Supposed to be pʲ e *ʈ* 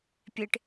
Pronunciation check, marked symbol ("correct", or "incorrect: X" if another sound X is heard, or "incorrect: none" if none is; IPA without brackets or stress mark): correct